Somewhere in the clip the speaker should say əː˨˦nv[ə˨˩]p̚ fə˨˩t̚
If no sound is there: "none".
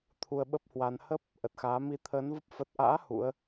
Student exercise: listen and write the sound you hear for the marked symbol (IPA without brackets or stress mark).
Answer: ə˦˥